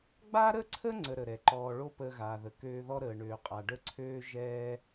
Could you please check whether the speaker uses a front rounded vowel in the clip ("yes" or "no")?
yes